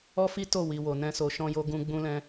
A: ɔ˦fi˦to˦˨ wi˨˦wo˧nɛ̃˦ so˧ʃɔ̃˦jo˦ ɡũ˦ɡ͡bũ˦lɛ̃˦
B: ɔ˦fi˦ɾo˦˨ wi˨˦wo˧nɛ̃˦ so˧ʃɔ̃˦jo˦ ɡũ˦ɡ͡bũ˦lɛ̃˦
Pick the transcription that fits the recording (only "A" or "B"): A